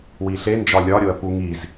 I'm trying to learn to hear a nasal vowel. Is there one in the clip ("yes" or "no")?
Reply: no